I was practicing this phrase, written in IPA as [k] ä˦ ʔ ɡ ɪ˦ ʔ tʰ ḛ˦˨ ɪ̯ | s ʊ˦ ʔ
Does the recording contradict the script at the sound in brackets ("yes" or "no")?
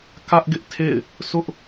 no